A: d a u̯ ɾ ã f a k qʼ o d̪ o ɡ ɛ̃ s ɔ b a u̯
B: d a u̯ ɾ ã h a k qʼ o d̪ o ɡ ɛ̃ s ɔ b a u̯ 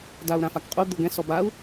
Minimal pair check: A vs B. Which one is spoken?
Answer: A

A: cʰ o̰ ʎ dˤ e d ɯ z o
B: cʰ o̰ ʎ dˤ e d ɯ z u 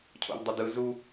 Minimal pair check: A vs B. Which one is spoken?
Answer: B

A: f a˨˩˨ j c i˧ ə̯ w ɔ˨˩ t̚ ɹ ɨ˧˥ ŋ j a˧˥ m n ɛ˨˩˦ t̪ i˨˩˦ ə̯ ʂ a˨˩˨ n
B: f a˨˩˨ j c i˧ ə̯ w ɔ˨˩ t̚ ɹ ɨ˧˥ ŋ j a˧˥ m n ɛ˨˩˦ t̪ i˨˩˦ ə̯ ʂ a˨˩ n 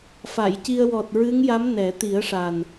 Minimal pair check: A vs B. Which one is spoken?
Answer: B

